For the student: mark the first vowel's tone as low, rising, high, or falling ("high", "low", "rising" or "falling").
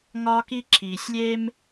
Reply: high